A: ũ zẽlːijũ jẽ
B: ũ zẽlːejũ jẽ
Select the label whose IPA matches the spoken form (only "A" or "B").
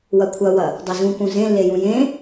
B